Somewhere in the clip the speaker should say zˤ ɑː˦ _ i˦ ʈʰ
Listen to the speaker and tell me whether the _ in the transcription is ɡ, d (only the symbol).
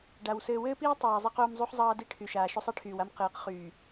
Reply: d